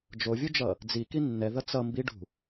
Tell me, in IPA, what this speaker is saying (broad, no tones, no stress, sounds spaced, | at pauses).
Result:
d͡ʒ o vʲ u d͡ʒ ʌ | d͡z i k i nː ɛ ð ʌ t͡s ʌ m b i ɖ ṳ